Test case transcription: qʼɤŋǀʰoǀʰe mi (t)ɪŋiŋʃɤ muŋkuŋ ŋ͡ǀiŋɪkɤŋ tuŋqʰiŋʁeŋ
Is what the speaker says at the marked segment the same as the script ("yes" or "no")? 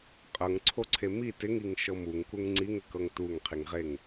yes